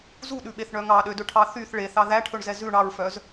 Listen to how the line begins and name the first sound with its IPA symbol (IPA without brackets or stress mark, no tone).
z